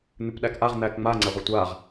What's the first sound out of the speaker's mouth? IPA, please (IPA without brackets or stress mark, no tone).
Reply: n̪